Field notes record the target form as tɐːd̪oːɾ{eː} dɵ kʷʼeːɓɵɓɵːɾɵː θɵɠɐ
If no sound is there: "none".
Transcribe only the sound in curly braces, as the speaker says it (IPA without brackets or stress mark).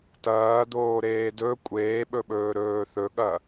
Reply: eː